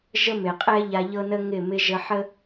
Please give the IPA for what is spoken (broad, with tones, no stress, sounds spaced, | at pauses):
ʒ ə˦ m ɪ˨ qʼ ɛ˦ ʎ a˧ ʎ ɤ˦ n ə˦ ŋ ɪ˦˨ m ɪ˧ ʒ ə˧ ħ ə˦